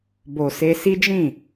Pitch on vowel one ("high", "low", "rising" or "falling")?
low